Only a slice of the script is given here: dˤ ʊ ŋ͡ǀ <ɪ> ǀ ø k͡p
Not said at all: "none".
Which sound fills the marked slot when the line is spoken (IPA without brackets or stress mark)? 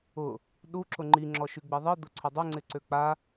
ɪ